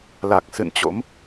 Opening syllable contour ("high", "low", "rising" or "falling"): low